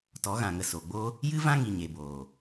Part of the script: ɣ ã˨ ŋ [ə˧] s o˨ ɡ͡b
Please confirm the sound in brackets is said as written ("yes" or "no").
yes